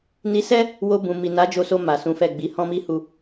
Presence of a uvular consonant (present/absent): absent